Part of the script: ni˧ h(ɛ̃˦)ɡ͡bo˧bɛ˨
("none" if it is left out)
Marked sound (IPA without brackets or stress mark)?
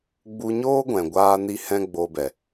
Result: ɛ̃˦